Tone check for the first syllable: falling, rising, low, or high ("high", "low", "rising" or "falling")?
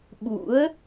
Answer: rising